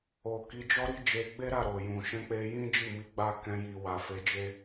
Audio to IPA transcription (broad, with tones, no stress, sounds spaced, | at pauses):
o˨ k i˨˦ d͡ʒ ɔ˦ ɾ i˦ d͡ʒ e˧ ɡ͡b e˦ ɾ a˦˨ ɾ o˨ j ũ˨ ʃ ɛ̃˧ k͡p e˧ j ĩ˦ d͡ʒ i˦˨ m i˨˦ ɡ͡b a˦˨ k ɛ̃˧ j i˨ w a˨ f e˨˦ d͡ʒ e˦